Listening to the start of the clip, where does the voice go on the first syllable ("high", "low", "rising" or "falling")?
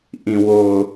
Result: low